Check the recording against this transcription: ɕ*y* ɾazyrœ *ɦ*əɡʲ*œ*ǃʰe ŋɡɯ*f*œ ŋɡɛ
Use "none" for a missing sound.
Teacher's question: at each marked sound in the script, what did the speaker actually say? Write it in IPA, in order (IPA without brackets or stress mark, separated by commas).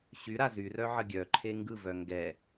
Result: y, ʕ, œ, v